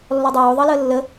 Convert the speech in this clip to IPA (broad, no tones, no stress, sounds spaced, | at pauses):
lː ɔ dˤ oː ðˤ ɤ l əː lː ə